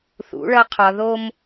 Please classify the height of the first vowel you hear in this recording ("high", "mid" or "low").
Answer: high